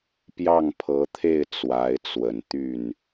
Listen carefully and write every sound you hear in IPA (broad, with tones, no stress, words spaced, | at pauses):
pjɑ˥˩ŋpʰɤ˧˥t̪ʰe˥˩ɪ̯ t͡swa˧˥ɪ̯t͡swə˨˩n t̪y˥˩n